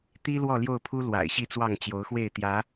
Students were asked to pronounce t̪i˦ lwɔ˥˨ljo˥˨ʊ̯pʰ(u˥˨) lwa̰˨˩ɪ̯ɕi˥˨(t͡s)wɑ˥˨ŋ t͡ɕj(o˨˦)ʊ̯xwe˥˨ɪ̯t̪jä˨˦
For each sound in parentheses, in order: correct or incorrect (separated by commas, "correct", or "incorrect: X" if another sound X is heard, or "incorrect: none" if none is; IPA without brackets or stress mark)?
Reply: incorrect: u˦, correct, correct